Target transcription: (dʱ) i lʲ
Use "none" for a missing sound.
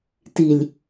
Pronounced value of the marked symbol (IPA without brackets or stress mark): t